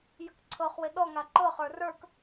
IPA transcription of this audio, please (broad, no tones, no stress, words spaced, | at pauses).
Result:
jəkǀʰɤχwɪ ɗɔ ŋaǃɤ χə˞rə˞k